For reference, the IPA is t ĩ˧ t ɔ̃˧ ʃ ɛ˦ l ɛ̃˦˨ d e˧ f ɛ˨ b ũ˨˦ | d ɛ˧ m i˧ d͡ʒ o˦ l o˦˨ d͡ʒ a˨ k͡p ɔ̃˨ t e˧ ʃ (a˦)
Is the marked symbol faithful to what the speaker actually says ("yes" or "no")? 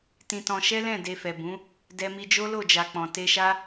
yes